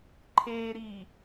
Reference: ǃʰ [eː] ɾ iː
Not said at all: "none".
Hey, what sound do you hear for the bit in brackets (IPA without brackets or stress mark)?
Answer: eː